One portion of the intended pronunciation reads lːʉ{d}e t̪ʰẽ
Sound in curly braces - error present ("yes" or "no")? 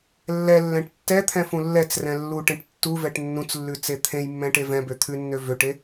yes